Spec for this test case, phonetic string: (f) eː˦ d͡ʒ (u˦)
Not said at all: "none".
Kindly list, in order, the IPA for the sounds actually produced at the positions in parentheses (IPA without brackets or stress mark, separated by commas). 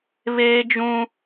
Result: β, ũ˦